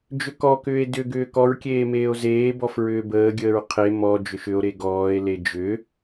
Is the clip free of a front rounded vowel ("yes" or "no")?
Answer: no